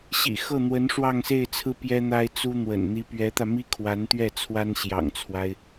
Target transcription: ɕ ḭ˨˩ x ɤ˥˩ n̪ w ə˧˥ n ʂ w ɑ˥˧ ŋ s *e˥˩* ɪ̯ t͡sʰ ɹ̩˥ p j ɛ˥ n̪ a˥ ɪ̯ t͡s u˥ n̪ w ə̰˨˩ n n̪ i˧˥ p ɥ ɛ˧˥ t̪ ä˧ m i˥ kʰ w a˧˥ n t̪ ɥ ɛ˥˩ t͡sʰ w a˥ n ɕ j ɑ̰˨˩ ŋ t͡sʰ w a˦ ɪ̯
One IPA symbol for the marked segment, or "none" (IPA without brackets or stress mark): e˥˩